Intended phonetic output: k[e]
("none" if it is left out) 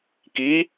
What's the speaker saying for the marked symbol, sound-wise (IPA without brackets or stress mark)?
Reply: i